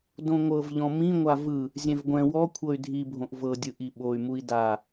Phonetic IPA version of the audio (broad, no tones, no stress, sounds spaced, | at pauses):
d õ ŋʷ ɤ v ʎ ɔ̃ m ĩ ŋʷ a v ɯ | zʲ ɛ̃ v ɡʷ ɛ̃ w ɔ kʷʰ ɤ y̯ dʱ i bʱ õ ʔ v ɤ dʲ ɯ ʔ i ɓ o y̯ m u i̯ d a